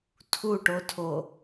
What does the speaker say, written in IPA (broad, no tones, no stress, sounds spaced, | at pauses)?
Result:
tʰ u ʈ o tʰ o